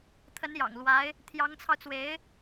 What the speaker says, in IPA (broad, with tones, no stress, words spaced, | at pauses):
t̪ʰə˧˥njɑ̰˨˩ŋ lwa˧˥ɪ̯ | t̪ʰjɑ˧˥ŋt͡sʰɑ˧ʊ̯t͡swe˧˥ɪ̯